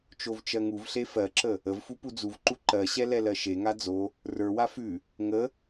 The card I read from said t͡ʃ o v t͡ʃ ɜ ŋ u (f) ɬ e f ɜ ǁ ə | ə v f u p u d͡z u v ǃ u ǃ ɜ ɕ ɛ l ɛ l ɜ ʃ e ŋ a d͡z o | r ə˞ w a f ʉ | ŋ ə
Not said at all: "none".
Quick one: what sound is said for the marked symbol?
v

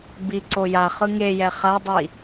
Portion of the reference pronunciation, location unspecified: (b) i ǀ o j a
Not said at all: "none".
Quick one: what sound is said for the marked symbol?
b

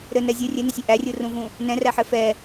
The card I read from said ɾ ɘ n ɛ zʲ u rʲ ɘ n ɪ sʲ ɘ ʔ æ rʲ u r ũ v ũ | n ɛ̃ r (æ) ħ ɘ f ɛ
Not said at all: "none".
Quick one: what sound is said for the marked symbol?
æ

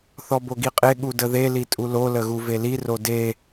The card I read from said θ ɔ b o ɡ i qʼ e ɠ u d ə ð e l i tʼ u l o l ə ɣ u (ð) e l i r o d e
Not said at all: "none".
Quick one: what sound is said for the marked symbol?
v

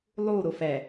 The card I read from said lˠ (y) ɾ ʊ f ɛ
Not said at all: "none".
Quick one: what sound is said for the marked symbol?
u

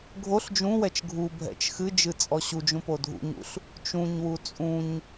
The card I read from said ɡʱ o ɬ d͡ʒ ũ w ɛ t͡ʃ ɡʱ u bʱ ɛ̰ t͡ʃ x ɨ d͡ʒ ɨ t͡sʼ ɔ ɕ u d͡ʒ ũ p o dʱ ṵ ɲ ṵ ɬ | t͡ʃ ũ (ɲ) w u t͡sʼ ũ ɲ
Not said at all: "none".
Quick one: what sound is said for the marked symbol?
ɲ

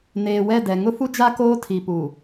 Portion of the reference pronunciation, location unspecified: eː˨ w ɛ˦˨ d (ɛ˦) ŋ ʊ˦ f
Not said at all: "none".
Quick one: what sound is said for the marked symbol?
ɛ˨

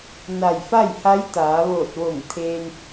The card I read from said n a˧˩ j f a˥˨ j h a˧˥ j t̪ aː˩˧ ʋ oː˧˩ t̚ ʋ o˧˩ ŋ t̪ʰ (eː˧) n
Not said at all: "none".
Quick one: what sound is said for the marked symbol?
eː˧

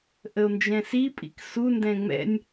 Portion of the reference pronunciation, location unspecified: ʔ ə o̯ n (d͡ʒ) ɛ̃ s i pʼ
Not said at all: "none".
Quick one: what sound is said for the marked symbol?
d͡ʒ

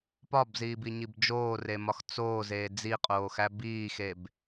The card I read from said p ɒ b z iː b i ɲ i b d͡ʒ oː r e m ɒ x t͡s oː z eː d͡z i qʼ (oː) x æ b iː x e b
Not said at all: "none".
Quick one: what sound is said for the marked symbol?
oː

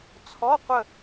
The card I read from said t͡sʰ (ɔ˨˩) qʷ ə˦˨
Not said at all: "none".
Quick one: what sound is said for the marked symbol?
ɔ˧˥˧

